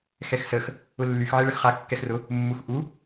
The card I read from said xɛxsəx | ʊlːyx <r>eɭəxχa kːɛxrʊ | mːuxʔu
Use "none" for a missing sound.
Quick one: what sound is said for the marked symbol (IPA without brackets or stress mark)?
ʕ